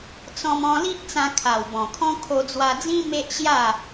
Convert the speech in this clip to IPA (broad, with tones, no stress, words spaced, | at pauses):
t͡sɔ̃˧m ɔ̃˧li˦ʔt͡sã˧ kʰa˨˩w bɔ̃˨˩kʰɔ̃˦ kʰo˧d͡zwa˧d͡zĩ˦ me˦ʔɕja˥˧